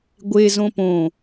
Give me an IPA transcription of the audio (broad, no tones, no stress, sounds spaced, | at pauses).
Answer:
ɡʷ e z õ p õ